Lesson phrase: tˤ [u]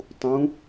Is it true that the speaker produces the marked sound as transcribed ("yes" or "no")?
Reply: no